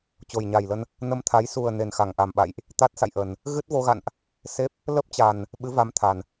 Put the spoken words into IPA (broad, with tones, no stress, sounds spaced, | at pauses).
t͡ɕ o˨˩ j ɲ a˨˩ j l ə˧ n | n ə˧ m t̪ʰ a˨˦ j s u˨˩ ə̯ n e˨˩ n x a˧˩ ŋ ʔ a˨˩ m ɓ a̰˧˨ j ʔ | t̪ a˦˥ t̚ s a̰˧˨ j ʔ ə˨˩ n | ɣ ɨ˦˥ t̚ v o˧ ɣ a̰˧˨ n ʔ | s e˦˥ p̚ | l ə˦˥ p̚ t͡ɕ a˨˩ n | ɓ ɨ˨˦ v a˨˦ m t̪ʰ a˨˩ n